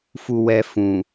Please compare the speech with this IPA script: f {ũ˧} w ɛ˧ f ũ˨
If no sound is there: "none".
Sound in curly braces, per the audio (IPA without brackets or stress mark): u˧